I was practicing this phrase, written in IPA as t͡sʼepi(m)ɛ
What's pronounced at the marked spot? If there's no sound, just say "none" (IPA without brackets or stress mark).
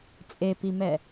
m